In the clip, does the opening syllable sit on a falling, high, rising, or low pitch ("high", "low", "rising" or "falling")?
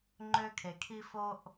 high